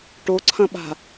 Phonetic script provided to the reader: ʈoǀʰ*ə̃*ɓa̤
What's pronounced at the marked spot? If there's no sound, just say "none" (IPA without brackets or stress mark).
ɐ̃